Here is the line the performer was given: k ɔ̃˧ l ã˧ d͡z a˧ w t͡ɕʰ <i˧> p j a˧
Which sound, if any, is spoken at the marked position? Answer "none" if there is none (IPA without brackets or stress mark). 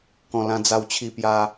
i˧